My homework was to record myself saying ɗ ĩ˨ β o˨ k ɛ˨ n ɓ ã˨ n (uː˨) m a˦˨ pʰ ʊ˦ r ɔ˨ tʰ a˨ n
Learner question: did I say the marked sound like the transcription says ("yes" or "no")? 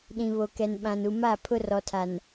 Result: no